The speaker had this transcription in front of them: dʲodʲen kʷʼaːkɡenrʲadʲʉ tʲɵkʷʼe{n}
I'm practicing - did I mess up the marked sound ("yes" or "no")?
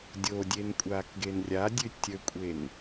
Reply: no